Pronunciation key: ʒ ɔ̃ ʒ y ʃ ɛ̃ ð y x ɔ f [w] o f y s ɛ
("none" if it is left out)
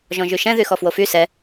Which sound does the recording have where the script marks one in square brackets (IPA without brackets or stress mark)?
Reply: w